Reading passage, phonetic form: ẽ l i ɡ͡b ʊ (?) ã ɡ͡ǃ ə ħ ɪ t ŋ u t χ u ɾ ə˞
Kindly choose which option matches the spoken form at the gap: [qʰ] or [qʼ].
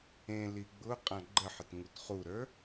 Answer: qʼ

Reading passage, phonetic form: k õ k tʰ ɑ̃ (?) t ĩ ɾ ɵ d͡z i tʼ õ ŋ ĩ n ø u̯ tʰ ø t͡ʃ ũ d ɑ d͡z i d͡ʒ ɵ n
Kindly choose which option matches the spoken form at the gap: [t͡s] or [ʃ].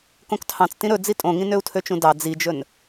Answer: t͡s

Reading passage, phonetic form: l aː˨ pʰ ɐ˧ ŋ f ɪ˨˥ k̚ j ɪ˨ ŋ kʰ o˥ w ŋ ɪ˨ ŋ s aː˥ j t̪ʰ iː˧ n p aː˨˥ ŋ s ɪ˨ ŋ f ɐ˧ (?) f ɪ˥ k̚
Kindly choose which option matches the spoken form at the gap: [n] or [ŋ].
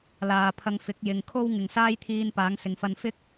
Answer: n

